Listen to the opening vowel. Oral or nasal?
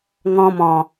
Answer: nasal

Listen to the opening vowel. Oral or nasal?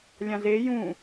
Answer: nasal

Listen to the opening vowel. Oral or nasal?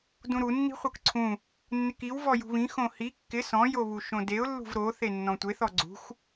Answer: nasal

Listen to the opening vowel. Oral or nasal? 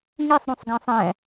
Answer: oral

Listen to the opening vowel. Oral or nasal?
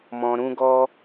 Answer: nasal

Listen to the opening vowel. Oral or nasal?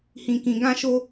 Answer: nasal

